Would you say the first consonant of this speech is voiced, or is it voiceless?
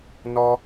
voiced